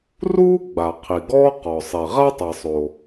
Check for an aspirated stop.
present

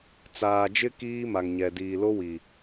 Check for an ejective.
absent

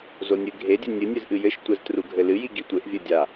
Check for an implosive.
absent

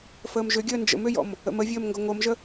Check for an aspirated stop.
absent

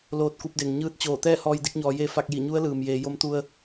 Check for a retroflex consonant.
absent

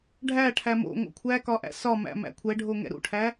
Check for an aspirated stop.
present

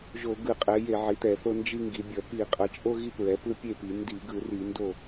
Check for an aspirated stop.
absent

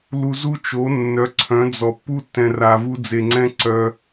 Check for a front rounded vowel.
present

